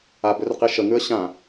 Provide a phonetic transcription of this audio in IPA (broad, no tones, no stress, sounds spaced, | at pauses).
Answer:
a b ʏ r q i ʃ ə ŋ ʉ ə̯ ɕ ã